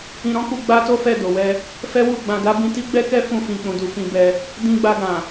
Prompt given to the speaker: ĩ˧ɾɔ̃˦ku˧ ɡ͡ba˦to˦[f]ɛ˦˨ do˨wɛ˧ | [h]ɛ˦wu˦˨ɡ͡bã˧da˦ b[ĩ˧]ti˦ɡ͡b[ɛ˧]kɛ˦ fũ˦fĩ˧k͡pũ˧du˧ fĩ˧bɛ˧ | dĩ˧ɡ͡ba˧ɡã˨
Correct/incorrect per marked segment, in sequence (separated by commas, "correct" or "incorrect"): correct, incorrect, correct, incorrect